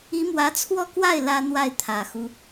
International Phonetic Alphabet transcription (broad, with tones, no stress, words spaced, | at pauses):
i˧˥mwä˧˥t͡sʰwɔ˥˧kwa˥˩ɪ̯ lä˥n̪wa˥˩ɪ̯ t̪ʰä˨˩xu˦